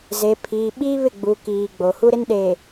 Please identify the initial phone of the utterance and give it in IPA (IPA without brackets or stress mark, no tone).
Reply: z